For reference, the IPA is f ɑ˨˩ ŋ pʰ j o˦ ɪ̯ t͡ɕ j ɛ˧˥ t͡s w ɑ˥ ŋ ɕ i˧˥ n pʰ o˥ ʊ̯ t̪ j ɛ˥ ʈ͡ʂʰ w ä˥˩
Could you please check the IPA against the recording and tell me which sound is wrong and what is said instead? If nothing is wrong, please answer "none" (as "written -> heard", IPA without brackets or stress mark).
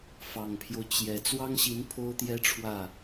ɪ̯ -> ʊ̯